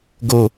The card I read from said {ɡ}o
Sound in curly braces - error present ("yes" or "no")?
no